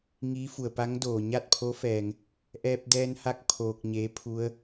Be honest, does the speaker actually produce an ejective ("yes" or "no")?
no